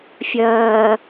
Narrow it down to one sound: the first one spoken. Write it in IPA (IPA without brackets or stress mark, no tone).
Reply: fʲ